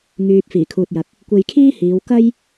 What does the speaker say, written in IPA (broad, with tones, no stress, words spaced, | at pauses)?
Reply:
ŋyː˨p̚ fiː˨˩kʰuː˨t̚jɐ˨k̚ | kʷe˧jkʰiː˥hiː˨˧w kɐ˥j